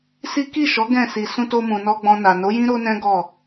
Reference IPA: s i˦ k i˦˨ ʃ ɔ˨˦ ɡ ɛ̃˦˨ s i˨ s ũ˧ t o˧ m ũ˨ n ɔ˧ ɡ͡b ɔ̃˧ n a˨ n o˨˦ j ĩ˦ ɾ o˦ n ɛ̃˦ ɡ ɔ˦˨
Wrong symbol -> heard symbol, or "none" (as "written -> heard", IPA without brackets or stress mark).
none